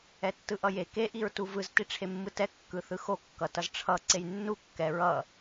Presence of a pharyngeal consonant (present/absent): absent